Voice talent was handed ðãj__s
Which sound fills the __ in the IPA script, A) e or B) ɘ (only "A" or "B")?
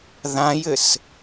B